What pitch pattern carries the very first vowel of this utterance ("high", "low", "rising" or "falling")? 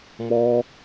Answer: high